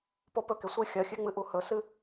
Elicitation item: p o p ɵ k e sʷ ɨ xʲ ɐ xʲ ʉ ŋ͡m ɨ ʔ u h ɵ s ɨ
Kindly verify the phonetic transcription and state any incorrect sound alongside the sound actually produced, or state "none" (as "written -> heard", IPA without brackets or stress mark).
none